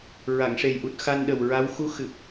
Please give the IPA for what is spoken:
ɹ a˨˩˨ ŋ ʂ e˨˩ j ʔ u˨˩ t̚ x a˧ n ɗ ə˨˩ w ɹ a˧˥ w x u˧˥ x ɨ˨˩ p̚

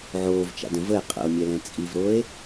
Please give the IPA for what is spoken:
ʕ oː v t͡ʃ a̰ d ə̃ v ə e̯ qʼ ə̰ o̯ mʲ ɛ l ɛ̃ t͡sʼ i v ɾ o e̯

